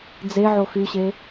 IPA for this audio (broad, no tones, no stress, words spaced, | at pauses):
d͡zeʕo xyɕe